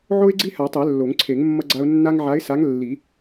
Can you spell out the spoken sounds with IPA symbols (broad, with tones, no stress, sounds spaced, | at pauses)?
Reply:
ʕ o˦ ɪ̯ ɡ͡ǀ i˦ h a˨˩˦ tˤ ɛ˨˩˦ lː o˨˩˦ ŋ ǀʰ e˨˩˦ ŋ mː ʌ˦ ɡ͡ǀ a˦ ʊ̯ nː a˦ ŋ ʕ a˨˥ ɪ̯ s a˨˥ ŋ lː i˨˩˦